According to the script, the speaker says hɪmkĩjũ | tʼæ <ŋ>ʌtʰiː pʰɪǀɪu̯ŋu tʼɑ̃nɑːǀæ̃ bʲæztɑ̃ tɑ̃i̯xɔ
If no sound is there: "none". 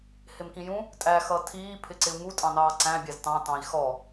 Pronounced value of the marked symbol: x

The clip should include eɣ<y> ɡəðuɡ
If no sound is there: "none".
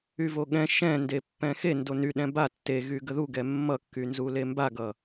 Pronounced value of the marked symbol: y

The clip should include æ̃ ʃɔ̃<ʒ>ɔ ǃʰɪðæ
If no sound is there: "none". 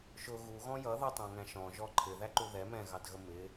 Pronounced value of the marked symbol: ʒ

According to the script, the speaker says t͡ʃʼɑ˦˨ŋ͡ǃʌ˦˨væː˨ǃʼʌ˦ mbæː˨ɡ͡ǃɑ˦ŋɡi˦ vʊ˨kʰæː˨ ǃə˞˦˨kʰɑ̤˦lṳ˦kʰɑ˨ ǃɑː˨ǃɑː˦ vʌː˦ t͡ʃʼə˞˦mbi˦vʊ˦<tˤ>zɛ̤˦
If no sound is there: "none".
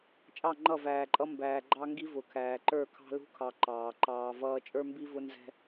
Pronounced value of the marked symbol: n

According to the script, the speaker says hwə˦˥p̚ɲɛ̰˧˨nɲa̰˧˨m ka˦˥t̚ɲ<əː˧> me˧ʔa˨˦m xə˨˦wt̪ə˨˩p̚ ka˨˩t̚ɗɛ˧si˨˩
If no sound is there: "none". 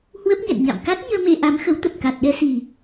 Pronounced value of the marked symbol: əː˧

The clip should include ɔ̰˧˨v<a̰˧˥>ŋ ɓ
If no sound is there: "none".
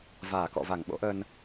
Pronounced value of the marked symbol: a˧˩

